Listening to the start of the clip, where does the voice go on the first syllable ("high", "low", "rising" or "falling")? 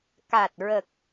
low